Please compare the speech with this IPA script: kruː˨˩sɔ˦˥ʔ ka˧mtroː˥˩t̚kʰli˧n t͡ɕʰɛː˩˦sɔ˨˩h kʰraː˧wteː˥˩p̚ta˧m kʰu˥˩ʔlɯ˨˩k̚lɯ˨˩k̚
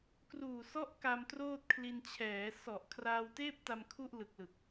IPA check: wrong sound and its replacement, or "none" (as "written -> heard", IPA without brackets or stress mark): h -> ʔ